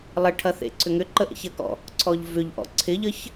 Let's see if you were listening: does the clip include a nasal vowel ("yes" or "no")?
no